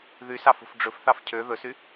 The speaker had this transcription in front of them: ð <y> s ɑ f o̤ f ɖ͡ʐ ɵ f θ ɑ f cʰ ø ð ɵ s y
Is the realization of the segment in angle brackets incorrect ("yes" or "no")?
no